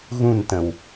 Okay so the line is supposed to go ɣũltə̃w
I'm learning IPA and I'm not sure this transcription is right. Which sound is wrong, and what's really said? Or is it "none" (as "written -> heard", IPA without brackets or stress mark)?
l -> n